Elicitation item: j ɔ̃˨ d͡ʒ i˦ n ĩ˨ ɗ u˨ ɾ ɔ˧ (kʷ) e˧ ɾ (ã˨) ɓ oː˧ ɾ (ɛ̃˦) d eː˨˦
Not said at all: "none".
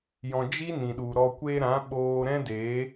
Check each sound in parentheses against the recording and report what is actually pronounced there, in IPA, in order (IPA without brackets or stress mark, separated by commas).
kʷ, ã˨˦, ɛ̃˦